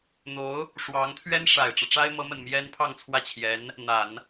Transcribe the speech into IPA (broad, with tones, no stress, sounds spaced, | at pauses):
n̪ o˧˥ ʊ̯ | ʂ w ɑ˧˥ ŋ t̪ʰ ɥ ɛ˥ n ʂ a˨˩ ɪ̯ ʈ͡ʂ ɤ˦ ʈ͡ʂ a˥ ɪ̯ m ɤ˧˥ m ə˨˩ n m j ɛ˥ n pʰ ɑ˥˧ ŋ t͡sʰ w ä˥˩ t͡ɕʰ j ɛ˧˥ n | n̪ a˨˩˦ n